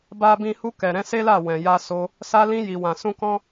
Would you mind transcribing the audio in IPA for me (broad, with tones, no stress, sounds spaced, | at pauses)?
b a˦ b ĩ˦ h u˧ k ɛ˨ ɾ ɛ̃˨˦ s e˦ l a˦˨ w ɛ̃˨ j a˧ s o˧ | s a˧ l ĩ˧ j i˨ w ã˨ s ũ˧ k ɔ̃˦